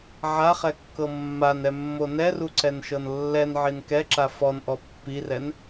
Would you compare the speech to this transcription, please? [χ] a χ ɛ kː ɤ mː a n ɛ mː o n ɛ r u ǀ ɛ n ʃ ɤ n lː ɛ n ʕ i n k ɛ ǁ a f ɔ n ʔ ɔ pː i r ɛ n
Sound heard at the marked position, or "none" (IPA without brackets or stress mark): ʕ